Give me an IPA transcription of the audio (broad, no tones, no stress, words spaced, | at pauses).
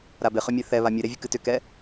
ɾabɪχʏmʲe θɛβa mʲɨɾevʲɨk ɨtʏkɛ